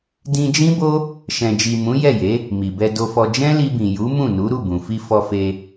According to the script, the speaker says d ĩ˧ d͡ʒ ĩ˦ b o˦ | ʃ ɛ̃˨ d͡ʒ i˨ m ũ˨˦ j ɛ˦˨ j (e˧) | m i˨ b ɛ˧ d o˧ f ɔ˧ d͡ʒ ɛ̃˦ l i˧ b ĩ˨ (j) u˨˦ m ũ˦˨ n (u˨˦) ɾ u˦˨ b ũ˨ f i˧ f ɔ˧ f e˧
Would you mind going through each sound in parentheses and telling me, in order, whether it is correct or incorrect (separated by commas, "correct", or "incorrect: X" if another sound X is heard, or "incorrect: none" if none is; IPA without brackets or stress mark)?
incorrect: e˨˦, correct, correct